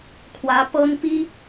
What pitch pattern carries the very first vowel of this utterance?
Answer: rising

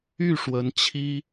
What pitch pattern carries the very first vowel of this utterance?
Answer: falling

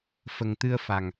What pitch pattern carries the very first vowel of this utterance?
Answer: low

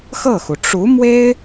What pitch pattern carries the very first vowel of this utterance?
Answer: falling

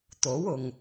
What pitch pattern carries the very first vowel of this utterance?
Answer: rising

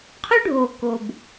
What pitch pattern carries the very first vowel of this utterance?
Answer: high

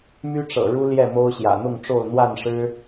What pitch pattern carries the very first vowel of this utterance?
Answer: high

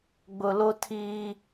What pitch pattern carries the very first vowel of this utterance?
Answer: low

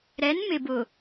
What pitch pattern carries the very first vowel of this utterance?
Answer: rising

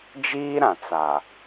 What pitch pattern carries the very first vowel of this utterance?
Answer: high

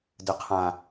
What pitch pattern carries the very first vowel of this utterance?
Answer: low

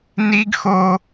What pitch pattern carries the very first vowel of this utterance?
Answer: high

